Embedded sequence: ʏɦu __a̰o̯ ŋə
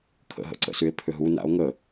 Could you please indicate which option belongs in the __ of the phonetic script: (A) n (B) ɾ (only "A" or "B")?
A